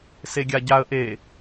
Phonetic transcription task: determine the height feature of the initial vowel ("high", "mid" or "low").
mid